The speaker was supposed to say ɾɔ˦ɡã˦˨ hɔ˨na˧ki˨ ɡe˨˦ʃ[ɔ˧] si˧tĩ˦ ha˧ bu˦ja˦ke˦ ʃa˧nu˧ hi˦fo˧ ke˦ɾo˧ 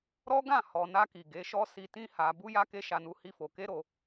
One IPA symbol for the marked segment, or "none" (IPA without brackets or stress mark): ɔ˦